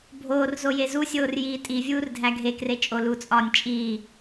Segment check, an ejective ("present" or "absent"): present